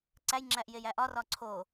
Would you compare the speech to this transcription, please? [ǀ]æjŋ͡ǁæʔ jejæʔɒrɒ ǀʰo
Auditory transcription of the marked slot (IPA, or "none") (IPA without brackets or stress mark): ǀ